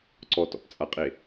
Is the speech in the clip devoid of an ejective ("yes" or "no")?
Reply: no